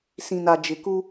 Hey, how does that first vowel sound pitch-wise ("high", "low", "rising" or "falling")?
low